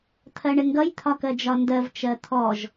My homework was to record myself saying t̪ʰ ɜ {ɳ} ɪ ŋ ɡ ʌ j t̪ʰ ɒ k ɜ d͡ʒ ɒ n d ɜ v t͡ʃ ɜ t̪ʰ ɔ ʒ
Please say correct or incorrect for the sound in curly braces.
correct